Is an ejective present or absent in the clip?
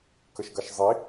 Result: absent